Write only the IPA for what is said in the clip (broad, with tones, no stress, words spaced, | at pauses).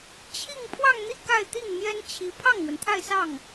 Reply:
t͡ɕʰi˥˧ŋ pʰwɑ˥˧ŋn̪i˥˧ ka˥˧ɪ̯t̪i˥˩ŋn̪jɛ˥n t͡ɕʰi˧˥ pʰɑ˥˩ŋn̪wə˩nt̪ʰa˥˧ɪ̯sɑ˥˩ŋ